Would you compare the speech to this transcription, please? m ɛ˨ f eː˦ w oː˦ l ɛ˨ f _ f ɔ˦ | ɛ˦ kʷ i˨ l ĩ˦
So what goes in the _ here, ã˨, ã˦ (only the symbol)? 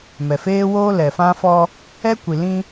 ã˦